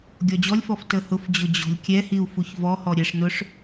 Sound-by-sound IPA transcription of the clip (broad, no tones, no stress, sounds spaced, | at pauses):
ɡʲ ɔ d͡ʑ ɔ lʲ f ɔ f t ə h ʊ f d͡ʑ ʊ d͡ʑ ɔ̤ lʲ kʲ ɛ h i u̯ f u ç v ɔ h ɔ ɾʲ ɛ ʂ n ʊ ʂ